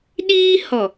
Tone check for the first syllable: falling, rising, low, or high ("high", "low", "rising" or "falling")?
high